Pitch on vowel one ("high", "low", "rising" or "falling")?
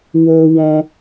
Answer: high